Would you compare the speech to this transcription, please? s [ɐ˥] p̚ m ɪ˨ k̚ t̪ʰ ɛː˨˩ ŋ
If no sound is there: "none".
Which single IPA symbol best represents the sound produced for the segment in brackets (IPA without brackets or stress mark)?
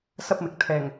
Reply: ɐ˥